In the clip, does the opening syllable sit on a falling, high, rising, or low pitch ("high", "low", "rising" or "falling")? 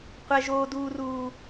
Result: high